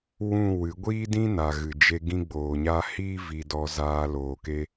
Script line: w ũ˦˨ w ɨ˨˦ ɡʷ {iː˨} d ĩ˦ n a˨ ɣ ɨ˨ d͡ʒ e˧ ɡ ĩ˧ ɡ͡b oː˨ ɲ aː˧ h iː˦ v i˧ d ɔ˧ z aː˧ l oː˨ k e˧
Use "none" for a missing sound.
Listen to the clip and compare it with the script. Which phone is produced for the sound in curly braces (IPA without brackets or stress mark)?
iː˦